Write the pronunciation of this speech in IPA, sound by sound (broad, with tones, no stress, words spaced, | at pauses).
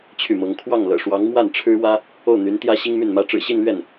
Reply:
t͡ɕʰy˥˩mɤ˧˥ŋ kʰwɑ˥˩ŋlɤ̰˨˩ʂwɑ˧˥ŋ mwa˥˩nʈ͡ʂʰɻ̩˥wä˥ | o˥˩ʊ̯ n̪y˧˥nt̪jä˥ ɕi˥ŋmy˥˩nmä˥ ʈ͡ʂɻ̩˨˩ɕi˥˧nlɥɛ˥˩n